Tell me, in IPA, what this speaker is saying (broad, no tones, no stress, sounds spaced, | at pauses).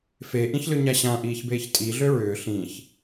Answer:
f e ʔ ĩ ç l ʏ ɲ a ɕ ã ʔ iː ç b eː ç tʼ i ɮ ø ɹ ʏː ɬ ĩ ç